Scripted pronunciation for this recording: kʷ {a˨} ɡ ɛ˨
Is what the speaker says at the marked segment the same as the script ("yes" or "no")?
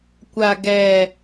yes